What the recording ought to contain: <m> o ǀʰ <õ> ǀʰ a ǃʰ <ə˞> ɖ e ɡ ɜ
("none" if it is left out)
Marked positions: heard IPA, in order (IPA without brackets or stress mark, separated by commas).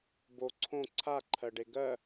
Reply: b, õ, ɜ